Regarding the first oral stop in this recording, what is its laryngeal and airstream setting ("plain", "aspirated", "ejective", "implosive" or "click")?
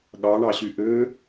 implosive